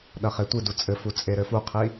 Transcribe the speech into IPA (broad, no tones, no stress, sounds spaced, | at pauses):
ɗ ɐ χ e tʷ ɨ d u t͡sʼ ɘ f u t͡sʼ e ɾ ɘ f u qʰ i